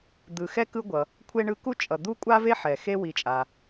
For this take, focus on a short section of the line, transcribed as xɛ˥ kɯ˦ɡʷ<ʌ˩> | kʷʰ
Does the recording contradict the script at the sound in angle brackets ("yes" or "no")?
no